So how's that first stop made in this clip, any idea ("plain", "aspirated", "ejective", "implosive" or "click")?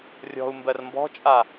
plain